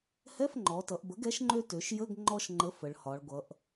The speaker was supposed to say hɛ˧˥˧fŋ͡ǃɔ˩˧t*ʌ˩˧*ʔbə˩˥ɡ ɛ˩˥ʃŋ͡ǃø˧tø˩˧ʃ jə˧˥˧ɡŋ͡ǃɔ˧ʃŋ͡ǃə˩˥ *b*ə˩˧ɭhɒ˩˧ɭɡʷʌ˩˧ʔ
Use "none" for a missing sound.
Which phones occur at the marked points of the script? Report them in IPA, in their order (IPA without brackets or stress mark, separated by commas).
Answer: ʌ˩˧, f